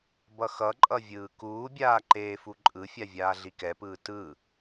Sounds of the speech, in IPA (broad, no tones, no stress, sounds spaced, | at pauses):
b ʌ x ʌ ǃʼ ʌ vʲ ɯː k uː bʲ aː ǃ eː f u ǃʼ ɯ fʲ a vʲ aː ɮ i k ɛ p ɯː t ɯ